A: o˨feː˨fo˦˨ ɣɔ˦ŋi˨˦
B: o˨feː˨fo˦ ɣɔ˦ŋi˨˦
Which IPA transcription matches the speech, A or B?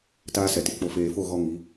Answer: A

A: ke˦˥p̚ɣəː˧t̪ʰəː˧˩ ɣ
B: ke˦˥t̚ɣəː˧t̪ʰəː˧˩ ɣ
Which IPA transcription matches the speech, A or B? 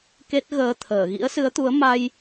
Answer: B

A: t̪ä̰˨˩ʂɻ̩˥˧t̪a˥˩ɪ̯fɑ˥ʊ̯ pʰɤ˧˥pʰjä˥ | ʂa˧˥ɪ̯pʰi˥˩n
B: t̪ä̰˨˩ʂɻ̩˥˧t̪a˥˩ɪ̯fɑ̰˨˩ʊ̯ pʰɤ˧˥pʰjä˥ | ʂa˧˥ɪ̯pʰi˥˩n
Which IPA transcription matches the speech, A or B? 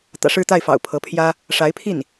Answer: B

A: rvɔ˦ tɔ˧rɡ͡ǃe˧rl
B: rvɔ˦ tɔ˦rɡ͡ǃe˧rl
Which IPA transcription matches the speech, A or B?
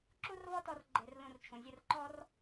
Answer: B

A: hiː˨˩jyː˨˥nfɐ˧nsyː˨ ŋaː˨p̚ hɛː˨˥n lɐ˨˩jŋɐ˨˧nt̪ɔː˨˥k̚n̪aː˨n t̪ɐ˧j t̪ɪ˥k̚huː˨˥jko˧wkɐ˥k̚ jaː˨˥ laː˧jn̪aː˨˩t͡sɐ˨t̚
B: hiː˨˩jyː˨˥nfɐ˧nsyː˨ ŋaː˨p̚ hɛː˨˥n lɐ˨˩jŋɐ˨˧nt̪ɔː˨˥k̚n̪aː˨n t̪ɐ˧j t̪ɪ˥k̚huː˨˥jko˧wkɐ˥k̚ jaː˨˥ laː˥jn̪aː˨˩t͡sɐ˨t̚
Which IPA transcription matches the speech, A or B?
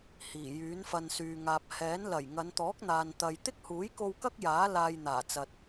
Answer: A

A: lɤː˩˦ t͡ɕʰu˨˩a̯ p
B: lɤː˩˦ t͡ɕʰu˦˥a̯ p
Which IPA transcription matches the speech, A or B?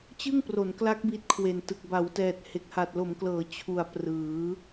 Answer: A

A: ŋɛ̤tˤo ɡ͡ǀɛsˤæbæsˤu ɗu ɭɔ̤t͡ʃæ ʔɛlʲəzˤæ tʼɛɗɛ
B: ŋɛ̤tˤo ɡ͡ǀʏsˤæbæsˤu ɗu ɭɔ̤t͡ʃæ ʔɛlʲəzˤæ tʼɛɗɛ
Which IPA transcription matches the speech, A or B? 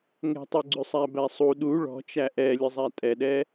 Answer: B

